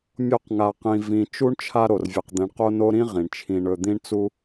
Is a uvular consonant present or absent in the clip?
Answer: present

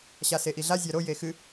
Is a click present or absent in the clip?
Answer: absent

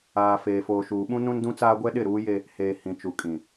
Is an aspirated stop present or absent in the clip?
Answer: absent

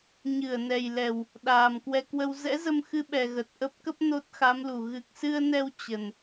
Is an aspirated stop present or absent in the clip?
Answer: absent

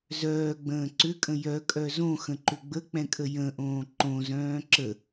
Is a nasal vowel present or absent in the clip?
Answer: present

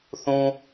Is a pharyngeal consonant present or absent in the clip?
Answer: absent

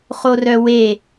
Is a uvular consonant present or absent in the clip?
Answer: present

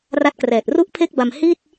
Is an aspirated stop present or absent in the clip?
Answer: present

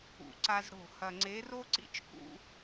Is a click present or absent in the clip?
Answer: present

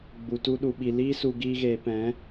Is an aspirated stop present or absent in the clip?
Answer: absent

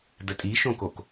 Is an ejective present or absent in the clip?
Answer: present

